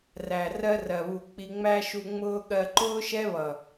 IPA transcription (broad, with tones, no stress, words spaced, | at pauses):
ræ˨ rɜ˦rɜ˨βu˨k͡pi˧ ŋ͡mæ˦ʃu˧ŋ͡mʊː˦ ɠɜ˧ǃʊː˦ʃɛ˦βʌ˨